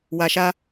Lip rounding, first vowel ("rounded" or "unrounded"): unrounded